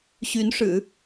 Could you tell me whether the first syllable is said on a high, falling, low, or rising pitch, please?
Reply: rising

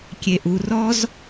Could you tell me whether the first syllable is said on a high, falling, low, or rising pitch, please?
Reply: low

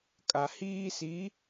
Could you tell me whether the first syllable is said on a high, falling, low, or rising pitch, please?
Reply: low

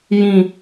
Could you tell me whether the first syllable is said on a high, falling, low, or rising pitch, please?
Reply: falling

